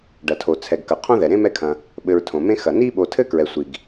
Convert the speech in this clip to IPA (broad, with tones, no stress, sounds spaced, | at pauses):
ɖ ɐ˩ tʰ o˩ t͡sʰ ɛ˩ ɡ k ɐ˩ qʰ õ˦ ð ɛ˩ ɾ ẽ˥ m ɛ˦ kʰ ɐ̃˨ | ɓ ɘ˨ ɹ tʰ õ˩ m ẽ˦ x ɐ˩ n i˦ ɓ o˨ tʰ ɘ˦ k ɹ ɛ˨ sʷ i˩ ɡ